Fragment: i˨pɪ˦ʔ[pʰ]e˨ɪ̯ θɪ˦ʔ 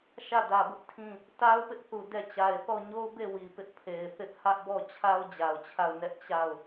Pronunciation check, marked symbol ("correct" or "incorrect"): correct